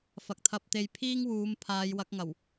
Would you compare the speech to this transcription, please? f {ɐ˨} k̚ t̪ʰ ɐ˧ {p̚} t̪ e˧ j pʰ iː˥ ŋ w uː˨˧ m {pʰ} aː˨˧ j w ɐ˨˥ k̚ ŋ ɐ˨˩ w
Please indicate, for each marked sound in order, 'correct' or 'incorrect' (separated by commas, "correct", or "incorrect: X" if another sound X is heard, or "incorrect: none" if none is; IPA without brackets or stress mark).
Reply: correct, correct, correct